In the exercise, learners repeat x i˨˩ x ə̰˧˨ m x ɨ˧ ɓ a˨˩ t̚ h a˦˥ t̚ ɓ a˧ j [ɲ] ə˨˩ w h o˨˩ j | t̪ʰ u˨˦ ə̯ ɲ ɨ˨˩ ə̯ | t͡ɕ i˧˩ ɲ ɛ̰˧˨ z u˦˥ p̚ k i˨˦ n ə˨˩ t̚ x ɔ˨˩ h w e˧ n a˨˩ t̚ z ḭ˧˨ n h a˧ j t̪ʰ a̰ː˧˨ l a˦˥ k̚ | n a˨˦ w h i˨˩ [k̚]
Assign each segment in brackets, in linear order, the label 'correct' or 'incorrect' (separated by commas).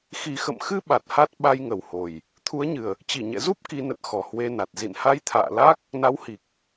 incorrect, correct